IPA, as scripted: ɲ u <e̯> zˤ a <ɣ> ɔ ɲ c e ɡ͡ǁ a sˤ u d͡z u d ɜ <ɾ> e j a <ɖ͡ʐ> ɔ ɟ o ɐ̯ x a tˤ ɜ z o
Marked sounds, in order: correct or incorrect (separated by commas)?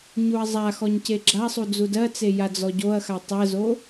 incorrect, incorrect, incorrect, incorrect